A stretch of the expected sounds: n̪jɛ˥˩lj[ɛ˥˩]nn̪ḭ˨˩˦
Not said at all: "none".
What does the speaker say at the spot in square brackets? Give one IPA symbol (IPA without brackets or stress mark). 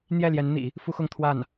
ɛ˧˥